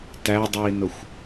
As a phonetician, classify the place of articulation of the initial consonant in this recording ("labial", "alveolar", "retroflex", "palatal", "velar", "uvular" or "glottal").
alveolar